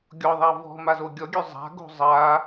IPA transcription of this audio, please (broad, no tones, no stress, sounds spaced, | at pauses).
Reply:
ɡʲ ɔ ðˤ a v ɔ̤ m a z o ɡʲ ɔ ɡʲ ø zˤ a̤ ɡ o̤ zˤ a